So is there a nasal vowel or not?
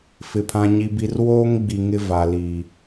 yes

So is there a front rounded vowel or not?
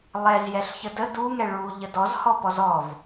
no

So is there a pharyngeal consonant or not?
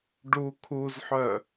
yes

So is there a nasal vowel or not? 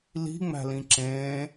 yes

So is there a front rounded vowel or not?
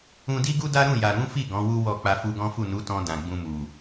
no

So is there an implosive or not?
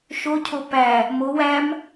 no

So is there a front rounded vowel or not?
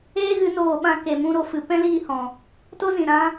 no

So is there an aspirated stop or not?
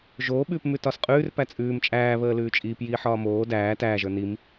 no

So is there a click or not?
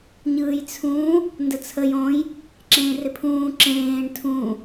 yes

